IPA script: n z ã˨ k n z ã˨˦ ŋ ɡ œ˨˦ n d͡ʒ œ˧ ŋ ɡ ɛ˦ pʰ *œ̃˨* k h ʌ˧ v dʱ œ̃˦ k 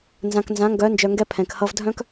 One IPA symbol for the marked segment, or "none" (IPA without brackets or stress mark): ɛ̃˨